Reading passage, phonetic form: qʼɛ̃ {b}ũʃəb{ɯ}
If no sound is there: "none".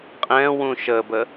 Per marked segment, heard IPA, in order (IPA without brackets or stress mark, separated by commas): w, ə